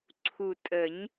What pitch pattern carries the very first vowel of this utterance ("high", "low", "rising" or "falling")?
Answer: low